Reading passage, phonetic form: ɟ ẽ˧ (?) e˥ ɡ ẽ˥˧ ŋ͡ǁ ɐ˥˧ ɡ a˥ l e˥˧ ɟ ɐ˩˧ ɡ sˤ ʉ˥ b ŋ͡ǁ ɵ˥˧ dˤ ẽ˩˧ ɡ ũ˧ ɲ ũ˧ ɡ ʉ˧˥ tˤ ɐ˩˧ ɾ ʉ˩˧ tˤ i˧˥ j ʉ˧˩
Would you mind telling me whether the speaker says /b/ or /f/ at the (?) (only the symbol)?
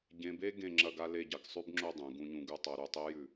b